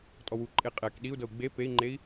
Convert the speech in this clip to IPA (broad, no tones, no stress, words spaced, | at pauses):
tʼɔwuǃʼe qʼɛk ɗiu̯dɤu̯ ɡ͡be pei̯ŋ͡ǃei̯